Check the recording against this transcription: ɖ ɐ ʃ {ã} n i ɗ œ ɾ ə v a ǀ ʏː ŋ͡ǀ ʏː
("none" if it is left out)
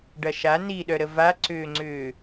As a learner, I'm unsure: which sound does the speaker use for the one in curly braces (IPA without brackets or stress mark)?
a